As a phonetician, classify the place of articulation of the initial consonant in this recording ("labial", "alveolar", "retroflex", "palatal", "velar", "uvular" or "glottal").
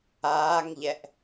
velar